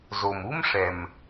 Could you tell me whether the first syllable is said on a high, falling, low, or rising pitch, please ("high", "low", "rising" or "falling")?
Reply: low